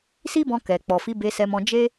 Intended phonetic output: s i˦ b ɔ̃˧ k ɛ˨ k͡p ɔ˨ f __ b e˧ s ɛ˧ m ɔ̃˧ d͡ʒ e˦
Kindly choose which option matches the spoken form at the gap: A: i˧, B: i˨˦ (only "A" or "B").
B